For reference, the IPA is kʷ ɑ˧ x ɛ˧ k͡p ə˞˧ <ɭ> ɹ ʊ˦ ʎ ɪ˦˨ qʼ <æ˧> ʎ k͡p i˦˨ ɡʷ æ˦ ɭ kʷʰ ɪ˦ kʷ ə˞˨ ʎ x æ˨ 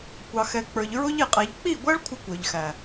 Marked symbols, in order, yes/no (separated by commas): no, yes